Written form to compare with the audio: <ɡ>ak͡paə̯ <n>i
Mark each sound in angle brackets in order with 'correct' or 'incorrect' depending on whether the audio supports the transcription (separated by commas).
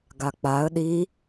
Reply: correct, incorrect